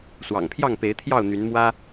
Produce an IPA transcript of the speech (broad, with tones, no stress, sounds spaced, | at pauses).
s w ɑ̰˨˩ ŋ pʰ j ɑ˥˨ ŋ p e˨˦ ɪ̯ t̪ʰ j ɑ˥˨ ʊ̯ n̪ y˨˦ n m w ä˦